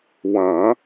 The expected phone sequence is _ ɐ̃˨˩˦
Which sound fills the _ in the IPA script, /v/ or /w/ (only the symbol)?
w